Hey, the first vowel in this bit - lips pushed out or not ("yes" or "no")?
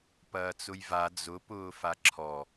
no